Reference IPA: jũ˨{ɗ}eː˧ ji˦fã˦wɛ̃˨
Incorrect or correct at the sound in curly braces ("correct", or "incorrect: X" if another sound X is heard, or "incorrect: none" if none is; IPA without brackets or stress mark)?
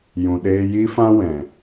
correct